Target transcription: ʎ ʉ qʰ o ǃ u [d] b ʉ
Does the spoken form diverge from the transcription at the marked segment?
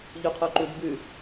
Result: no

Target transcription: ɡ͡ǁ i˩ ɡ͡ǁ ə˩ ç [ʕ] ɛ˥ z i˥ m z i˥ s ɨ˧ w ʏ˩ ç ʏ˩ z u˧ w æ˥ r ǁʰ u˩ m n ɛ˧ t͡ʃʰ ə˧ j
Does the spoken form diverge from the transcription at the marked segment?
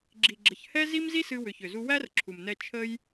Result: yes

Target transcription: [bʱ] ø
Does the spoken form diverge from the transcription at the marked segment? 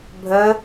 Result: no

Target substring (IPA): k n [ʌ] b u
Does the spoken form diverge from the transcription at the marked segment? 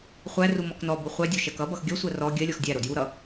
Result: yes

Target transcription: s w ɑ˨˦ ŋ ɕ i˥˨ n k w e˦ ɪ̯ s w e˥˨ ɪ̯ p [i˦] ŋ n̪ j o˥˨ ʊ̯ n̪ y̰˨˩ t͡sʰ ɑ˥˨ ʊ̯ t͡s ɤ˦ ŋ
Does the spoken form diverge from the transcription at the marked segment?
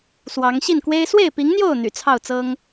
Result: yes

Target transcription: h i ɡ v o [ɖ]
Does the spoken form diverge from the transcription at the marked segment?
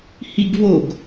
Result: yes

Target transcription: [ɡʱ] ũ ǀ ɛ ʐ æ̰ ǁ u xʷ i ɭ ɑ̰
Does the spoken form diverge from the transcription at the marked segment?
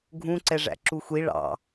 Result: no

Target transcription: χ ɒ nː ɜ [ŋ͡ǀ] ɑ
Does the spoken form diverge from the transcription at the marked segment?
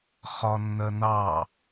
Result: yes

